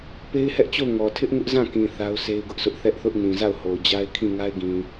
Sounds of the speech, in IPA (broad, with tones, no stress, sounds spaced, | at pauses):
p e˦ ɪ̯ h ɛ˦ ʔ t͡ɕ o˦˨ ʊ̯ ŋ ɔ˨ tʰ ɪ˦ ʔ ŋ ʊ˦ ʔ z ã˦˨ k ĩ˨ θ a˦ ʊ̯ sʰ e˦ ɪ̯ ɡ ʊ˦ ʔ sʰ ʊ˦ ʔ θ ɛ˦ ʔ θ ʊ˦ ʔ n ĩ˨ z a˦˨ ʊ̯ h o˨ ʊ̯ d͡ʑ a˦ ɪ̯ kʰ ĩ˦˨ ŋ a˦ ɪ̯ ɡ ĩ˨